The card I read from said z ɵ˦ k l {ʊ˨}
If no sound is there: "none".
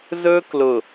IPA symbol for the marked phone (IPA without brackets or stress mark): ʊ˨